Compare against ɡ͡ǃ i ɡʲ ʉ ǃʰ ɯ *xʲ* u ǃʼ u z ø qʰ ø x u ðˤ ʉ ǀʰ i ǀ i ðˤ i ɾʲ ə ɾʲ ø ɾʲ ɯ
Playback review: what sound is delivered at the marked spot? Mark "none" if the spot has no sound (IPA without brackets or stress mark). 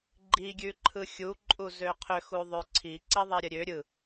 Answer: xʲ